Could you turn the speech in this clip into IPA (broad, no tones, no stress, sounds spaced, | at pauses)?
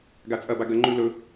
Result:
ɡ a t͡sʼ ɐ b a ɡ ɐ ŋ͡ǃ ʉ l ɵ